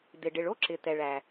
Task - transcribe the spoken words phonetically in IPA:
d̪ ɪ˩ ɖ ɪ˩ ɭ o˥ ǁ ɪ˩ t̪ ɛ˩ ɭ æ˩

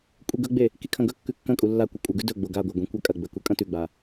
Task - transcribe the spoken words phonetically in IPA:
kʷʼ e ɡ ɵ ɡ͡b e | k i kʰ ɐ̃ ɡ ɵ kː ʉ kː ɐ̃ kʼ u lː a kʷ ɨ kʷʼ ɐ ɡ ʉ d ɵ ɡ͡b o ɡ a ɡʷ a ɡʷ ĩ kʷ a kʼ ɐ ɡ͡b ɵ k u kʼ ɐ̃ t ʉ ɡ͡b a

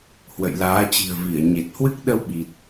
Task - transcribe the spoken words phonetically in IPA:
h w ə̰˧˨ j l aː˨˦ t͡ɕ i̤˨˩ ə̯ v i˧˩ ə̯ ɲ e˨˩ t̚ h w ɨ˦˥ k̚ ɗ ə˧ w ɓ i˨˩ t̚

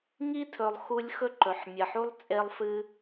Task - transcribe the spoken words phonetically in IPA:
ŋ i˦ tʰ ɵ˧ lˠ x u˦ lʲ x ɵ˦ ǃ ɵ˧ ħ mʲ ɐ˧ ħ u˦ lˠ t͡sʼ e˦ lˠ f ɨ˦

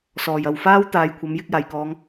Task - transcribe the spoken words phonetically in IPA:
s ɔː˨˩ j ɐ˨ w f aː˥ w t̪ aː˨˧ j kʷʰ ɐ˨˥ m j ɪ˨˥ k̚ j aː˨˩ j k ɔː˨˧ ŋ

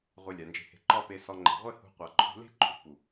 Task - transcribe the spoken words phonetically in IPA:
ʁʷ e˧ lʲ a˨ n d͡ʒ e̤˧ h e̤˧ ǃ ɒ˦ p e˧ s ɒ˧ ŋ͡ǃ e̤˨ ʁʷ e˦ h ṳ˧ qʷ a˨ ǃʰ ṳ˧ l e̤˦ ǃʼ ṳ˨ p u˨

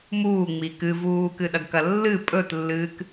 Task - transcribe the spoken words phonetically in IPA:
m uː ŋ͡m i k ɨ v uː k ɨ ɗ ɐ ɡ k ɐ lː ɨ pʼ ɵ t lː ɨː k

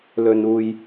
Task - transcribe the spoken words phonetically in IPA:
l ɵ˨ n uː˨ j

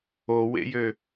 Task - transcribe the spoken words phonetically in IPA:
o w ḛ j ø

